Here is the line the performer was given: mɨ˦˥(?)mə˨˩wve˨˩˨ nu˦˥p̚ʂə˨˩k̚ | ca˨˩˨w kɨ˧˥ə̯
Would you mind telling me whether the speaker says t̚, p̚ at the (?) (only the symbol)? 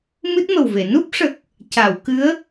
t̚